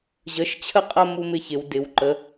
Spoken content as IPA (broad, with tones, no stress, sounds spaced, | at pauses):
ʑ ə˩˧ ʃ t͡ɕʰ ə˥˨ qʼ ɐ˥˨ m u˥˨ m ɪ˥˨ ç ɪ˩˧ w d ɪ˩˧ w ǃ ə˩˧